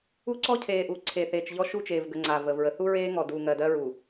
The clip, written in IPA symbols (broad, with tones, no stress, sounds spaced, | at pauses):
u˦ ǀ ɔ˦ cʰ eː˨ ʔ u˨ ǀʰ e˨ θ eː˨ t͡ʃ ʎ ɔ˦ ʃ u˦˨ t͡ʃ eː˨ v ɡ ə˨ ŋ͡ǀ aː˨ v əː˨ v ɹ ə˨ θ u˦ ɹ eː˦ ŋ ɔ˨ d u˨ ŋ ɜ˨ d ɜ˦ ɹ u˨